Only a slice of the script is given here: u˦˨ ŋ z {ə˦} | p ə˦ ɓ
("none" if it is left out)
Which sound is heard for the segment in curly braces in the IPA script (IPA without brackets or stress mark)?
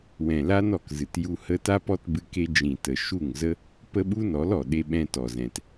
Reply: ə˦